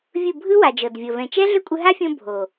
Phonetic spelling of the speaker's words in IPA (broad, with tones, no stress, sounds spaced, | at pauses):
vʲ ɯ˦˨ bʱ ɯ˦ w a˨ d͡ʒ ɤ˨ d vʲ ɤ˨ v ɛ̃˨ t͡ʃ ɛ˦ ɮ ʏ˦ kʷʼ ɯ˧ ɦ a˦ fʲ õ˧ bʱ o˨